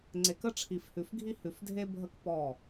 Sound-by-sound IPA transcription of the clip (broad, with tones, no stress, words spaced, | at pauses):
ŋ͡ǀe˨kə˦ ʈ͡ʂʰi˨fhʉ˨fɡʱi˦ hʉ˨fdʱe˦ bʱə˦k pɔ˦˨